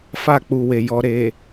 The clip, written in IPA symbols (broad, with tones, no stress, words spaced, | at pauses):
fa˦˨k͡pu˨we˨jɔ˨ ɾe˨